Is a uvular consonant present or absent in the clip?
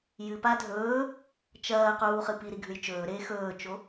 present